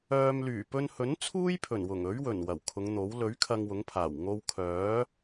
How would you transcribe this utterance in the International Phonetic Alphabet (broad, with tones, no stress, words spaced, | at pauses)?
œː˨mlyː˨˩pɵ˧nhɵ˨˥n t͡sʰuː˥jpʰɵ˨˩nwʊ˨˩ŋ ɵ˨˥ɥwɵ˨˩n wɐ˨˩wkʰʊ˨˧ŋn̪o˨˥w lɵ˨˥ɥ kʰɐ˧ŋwʊ˨˥ŋpʰaː˨˩w ŋo˧wkʰœː˨˥